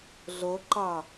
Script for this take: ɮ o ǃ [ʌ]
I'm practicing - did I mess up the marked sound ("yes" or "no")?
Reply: yes